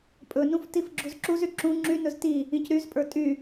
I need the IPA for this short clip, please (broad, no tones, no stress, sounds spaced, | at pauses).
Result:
pʼ ɵ n ũ f t i f ɡ͡ǁ u z ǁ u z y ǁ ũ ŋ͡ǁ y n ɵ z t i | ĩ c ɾ y z pʼ ə˞ tʼ y